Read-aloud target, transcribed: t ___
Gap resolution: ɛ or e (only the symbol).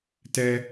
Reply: ɛ